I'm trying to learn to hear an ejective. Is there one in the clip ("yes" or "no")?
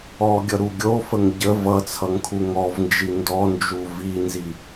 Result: no